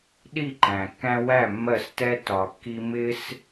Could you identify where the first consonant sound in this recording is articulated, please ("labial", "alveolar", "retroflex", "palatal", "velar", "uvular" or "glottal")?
alveolar